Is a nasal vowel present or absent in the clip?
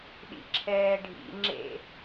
absent